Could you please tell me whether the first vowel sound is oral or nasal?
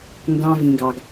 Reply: nasal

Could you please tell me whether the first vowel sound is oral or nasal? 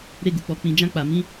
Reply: oral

